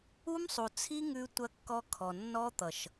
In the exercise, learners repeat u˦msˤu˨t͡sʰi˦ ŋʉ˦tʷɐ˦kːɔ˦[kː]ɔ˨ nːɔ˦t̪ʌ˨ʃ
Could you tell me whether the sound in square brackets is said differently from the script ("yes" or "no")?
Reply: yes